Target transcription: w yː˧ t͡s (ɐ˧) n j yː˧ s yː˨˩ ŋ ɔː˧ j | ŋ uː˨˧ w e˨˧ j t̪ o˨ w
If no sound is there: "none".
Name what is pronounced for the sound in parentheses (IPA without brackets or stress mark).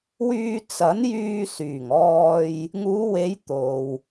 ɐ˨˥